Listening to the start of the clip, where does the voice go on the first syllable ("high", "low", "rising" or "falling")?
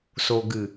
low